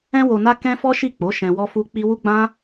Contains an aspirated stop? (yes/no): no